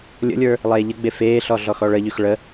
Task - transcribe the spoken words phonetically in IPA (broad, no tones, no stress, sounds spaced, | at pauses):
lʲ ə̰ lʲ ə˞ | lˠ eː ʎ ə ɡ͡b e f eː ɬ ɔ ɮ ɔ x ɔ ɭ ə ʎ y x ɭ ə